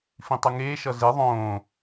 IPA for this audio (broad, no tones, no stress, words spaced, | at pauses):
fĩtˤuŋeː ʃʌze ðˤõː